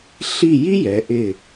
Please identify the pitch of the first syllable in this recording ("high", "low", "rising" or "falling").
falling